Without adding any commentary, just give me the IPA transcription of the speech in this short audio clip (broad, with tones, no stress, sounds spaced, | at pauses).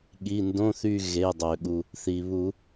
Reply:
ɠ i˩˧˩ n d õ˧˥˧ θ y˦˨ ɣ e˩˧˩ dˤ ø˩ ɠ u˩ | θ i˩ β u˨˩˦